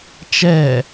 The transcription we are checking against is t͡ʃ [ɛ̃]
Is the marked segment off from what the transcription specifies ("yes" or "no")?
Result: yes